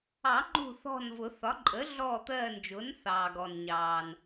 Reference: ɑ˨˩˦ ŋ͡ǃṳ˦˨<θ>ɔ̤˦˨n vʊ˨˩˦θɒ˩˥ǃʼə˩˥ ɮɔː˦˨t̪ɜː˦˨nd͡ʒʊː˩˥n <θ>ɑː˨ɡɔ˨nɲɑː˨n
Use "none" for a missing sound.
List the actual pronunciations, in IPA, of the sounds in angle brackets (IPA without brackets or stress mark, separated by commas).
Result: θ, θ